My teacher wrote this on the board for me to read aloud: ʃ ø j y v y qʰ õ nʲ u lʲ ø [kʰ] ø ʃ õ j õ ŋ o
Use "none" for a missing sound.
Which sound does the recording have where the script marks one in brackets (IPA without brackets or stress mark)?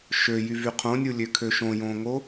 kʰ